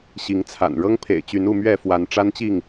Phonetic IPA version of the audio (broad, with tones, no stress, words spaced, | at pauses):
ɕi˨˦ŋt͡sʰa̰˨˩n ɻɤ˦ŋpʰḛ˨˩ɪ̯t͡ɕy˨˦nu˥˨ mɥɛ˥˨fwa˨˦n ʈ͡ʂa˦nt͡ɕi˥˨ŋ